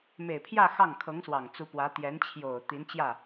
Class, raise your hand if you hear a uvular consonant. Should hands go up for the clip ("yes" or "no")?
no